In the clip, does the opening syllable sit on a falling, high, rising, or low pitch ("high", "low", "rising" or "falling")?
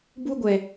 high